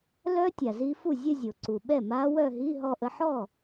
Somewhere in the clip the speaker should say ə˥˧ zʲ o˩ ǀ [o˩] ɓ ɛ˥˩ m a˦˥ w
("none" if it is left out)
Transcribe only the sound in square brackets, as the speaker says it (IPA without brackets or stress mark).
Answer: u˩